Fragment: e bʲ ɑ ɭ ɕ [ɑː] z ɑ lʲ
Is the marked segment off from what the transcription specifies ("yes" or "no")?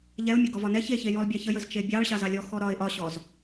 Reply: yes